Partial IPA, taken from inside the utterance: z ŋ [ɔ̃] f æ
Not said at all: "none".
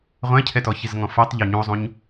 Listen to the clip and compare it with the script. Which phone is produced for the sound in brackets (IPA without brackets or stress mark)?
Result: ɔ̃